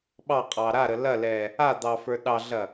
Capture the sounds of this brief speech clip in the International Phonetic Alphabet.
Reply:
ɓɑqʼɑ ɾaɾə lɐlɛ | ad̪ɑfə˞ ɗɑɮɐ

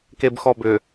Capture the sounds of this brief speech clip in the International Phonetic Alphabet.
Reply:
kebxɔbʏ

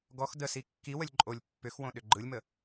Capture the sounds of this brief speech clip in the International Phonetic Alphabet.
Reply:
ɡɔx dəsi kːiwəlʲ ǃʼolʲ pːʏxwõ ɗʏɡ͡ǃɯlʲmə

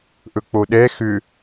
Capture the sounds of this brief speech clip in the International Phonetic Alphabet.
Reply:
ʔɵk͡poɗɛ xʏ

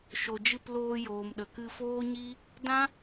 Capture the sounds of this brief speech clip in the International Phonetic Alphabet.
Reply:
ʃo˨d͡ʒɨ˦˨p loː˧joː˨mɗə˨kɨ˧ foː˦ɲi˦ | dã˦

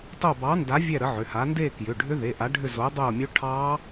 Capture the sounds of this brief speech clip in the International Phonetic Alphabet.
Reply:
tˤo˦˨bɑ˨˥nda˨˥ vʲɛ˦˨ ɾə˨˥ʕʏ˩˧˩ha˨˥ nde˦˨ kjʏ˩˧˩ɖʱʏ˦˥ðe˩˧˩ ʔa˨˥ɖʱʏ˦˨ zo˨˥dˤo˦˨mʲo˦˥ ʈʰɑ˦˥

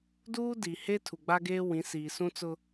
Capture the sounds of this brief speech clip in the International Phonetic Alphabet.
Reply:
duː˦di˨ he˦ tʰu˨ɡ͡ba˦ɡeː˦ wĩ˨˦siː˨sũ˦ t͡sʊ˦

